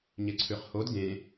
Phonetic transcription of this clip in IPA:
ɲ e ǀʰ ʉ χ h o d ɡ ẽ

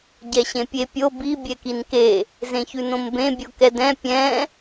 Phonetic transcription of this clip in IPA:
ɟ ɛ ɕ ẽ pʲ e pʲ o b i bʲ ɛ k i n k e | z ẽ ç ʉ n õ m b ẽ bʲ o k ɛ d ɛ̃ pʲ ɛ̃

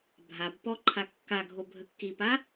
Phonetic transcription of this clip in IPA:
bʱ a b p ɔ ǃʰ a kː a ɡʱ o bʱ ə kː i p a

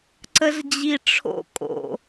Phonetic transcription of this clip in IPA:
ǀ ə z d͡ʑ i ʈ͡ʂʰ o̰ kʼ o̰

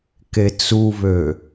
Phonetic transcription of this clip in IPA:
k e t͡s u β ø

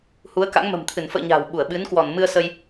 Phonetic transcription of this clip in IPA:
h u˨˦ ə̯ k a̰˧˥ ŋ m ə̤˨˩ m t̪ʰ ɨ˧˩ n f ə̰ː˧˨ ɲ a̤˨˩ w ɓ u˧˩ ə̯ ɓ ɨ˨˦ n k w ɔ˧˩ n m ɨ˧ ə̯ s ə˧ j

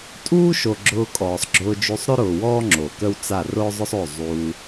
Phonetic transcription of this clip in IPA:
tʼ uː˦ ʃ o˨ ɡ͡ǁ ʊː˧ kʼ ɔː˨ sˤ ɡ͡ǁ ʊː˧ d͡ʒ y˧ sˤ ɾ ø˦ ɾ ʊː˨ w ɔː˦ ŋ͡ǁ o˨ k ə˦ w t͡s a˦˨ r ʊː˦ zˤ ʊ˦ sˤ o˦˨ zˤ uː˧

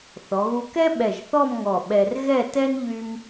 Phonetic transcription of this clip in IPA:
θ ɔ˩˧ ɣ u˧ k ɛ˥ ɓ ɛ˧˩ ʒ θ ɔ˥˧ m ŋ ɔ˧˩ ɓ ɛ˧ r ɣ ɛ˥˧ t ɛ˥ n ʎ y˥ m

